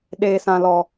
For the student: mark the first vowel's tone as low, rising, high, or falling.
low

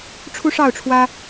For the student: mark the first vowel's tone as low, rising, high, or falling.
high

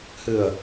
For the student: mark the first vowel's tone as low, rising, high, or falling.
low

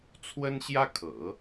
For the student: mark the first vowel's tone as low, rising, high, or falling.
high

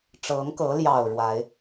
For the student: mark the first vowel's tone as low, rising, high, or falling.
rising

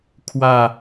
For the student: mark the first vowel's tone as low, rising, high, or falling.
falling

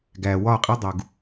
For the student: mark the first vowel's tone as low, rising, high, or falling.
low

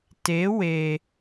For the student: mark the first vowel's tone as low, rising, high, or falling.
rising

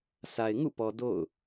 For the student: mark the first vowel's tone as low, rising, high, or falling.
low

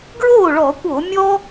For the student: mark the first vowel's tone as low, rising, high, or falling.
falling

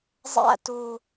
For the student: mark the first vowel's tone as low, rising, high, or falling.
falling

